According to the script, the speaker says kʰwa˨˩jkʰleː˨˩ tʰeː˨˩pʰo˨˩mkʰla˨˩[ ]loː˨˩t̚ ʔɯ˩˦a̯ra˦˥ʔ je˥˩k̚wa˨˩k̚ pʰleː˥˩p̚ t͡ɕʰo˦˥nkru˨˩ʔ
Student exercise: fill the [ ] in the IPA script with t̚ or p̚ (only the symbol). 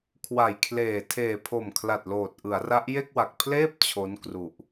t̚